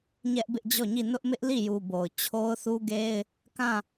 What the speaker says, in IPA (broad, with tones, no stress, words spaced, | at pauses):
ɲɛ˦ʔbɪ˦ʔd͡ʑɔ˦˨ɲi˦˨ nʊ˦ʔmɪ˦ʔli˦˨ju˨ bo˨ʊ̯ t͡ɕʰo˦ʊ̯θu˦ɡe˦ɪ̯ | kã˦˨